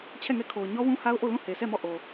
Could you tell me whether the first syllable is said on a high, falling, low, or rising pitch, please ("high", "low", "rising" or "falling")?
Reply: falling